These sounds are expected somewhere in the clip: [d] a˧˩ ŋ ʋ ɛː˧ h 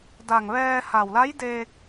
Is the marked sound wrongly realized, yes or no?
no